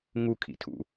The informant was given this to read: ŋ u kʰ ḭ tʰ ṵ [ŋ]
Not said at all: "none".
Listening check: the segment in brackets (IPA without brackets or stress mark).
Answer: none